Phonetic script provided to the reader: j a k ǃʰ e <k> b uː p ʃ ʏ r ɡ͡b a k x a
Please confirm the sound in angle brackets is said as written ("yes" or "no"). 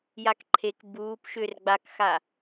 yes